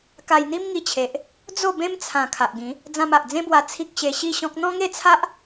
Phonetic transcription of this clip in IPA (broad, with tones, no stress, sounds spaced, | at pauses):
k a˧ j n̪ i˦ m ŋ i˧ t͡ɕʰ e˨ ʔ | d͡z o˥˧ b ẽ˦ m t͡sʰ ã˨˩ kʰ a˨ ʔ ɡ ĩ˨˦ | d͡z ã˧ m a˨ ʔ d͡z ẽ˦ b w a˧ t͡sʰ i˦ k̚ ɕ e˧ ɕ i˥˧ ɕ ɔ̃˦ k̚ n̪ ɔ̃˦ ŋ e˥˧ t͡sʰ a˦ ʔ